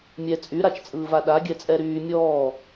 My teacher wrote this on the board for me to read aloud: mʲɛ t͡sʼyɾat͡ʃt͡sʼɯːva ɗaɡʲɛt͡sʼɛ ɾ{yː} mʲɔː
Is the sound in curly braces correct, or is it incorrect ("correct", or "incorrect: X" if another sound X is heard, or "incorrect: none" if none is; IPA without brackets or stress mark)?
correct